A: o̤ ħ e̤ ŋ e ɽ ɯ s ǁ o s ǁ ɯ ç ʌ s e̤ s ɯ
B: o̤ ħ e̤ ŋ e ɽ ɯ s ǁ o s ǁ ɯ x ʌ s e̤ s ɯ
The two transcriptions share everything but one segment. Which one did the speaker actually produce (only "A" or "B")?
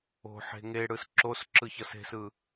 A